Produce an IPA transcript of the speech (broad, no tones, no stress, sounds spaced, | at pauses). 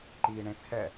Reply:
ǃ iː ɳ ẽ t͡sʰ ɛ